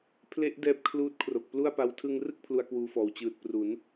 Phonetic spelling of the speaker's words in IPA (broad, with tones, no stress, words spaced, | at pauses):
pʰle˦˥ʔ dɛː˦˥p̚kʰluː˦˥t̚ kʰro˨˩k̚plu˥˩a̯pa˦˥w tʰɯ˧ŋrɯ˥˩k̚ pʰlu˧a̯kwuː˧fɔː˨˩w t͡ɕɯː˨˩t̚ pru˩˦n